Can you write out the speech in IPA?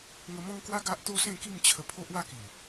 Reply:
ŋə˧ mɔ̃˦ŋkwa˦ ɡa˦ʔt̪o˦ sẽ˥˧ki˥˧mt͡ɕʰə˧ pʰo˦ʔwa˥˧ki˨˩

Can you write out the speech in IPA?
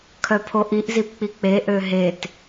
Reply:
kʰœpʰoʔiʔ zipk͡pik͡pe ʔøɦet

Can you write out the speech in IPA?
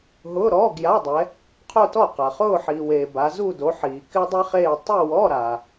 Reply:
ɦʊː˧˥˧ɾɔː˧˥˧ɡja˧˥˧dˤɛ˨˦ | qʰo˥˧tɔ˥˩qa˨χʊː˥˧ ħiː˨weː˨ ba˨˦zu˥˧do˨˦ħiː˨ kɪ˥dˤi˥χeː˥˧ tˤu˥˧wɔ˧˥˧ɾa˨

